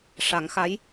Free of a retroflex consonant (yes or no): no